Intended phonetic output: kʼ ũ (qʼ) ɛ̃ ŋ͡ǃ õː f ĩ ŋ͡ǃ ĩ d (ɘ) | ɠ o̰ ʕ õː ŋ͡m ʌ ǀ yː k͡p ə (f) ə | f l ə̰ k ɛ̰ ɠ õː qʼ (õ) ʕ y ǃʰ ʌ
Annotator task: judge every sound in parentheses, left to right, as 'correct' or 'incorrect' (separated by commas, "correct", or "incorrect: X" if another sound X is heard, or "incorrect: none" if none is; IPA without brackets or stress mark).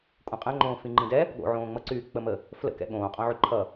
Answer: correct, incorrect: ɛ, incorrect: m, correct